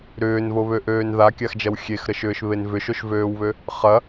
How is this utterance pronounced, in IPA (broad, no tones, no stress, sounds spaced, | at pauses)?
ɾ ʏː n v o β ø ʔ øː n ð a kʲ a x d͡ʒ ɐ w xʲ e x ɾ ə ʃ ʏː ʃ β e n v ʏ ʃ o ʃ v øː w β ø | χ ɐ